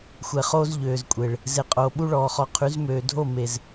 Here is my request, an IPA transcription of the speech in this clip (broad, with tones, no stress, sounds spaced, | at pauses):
xʷ ɛ˨ χ oː˦ z ʎ øː˨ z kʷʼ e˨ ɭ | z e˨ qʼ oː˨ ɓ u˦ ɭ ɔː˨ χ ɔ˨ qʰ y˨˦ z m øː˨ dʱ o˦˨ m e˨ z